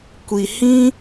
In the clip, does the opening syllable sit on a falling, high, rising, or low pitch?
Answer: low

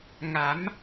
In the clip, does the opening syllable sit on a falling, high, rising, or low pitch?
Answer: rising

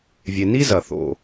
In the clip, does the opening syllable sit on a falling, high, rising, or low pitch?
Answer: low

